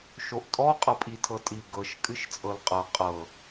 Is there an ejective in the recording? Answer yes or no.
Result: yes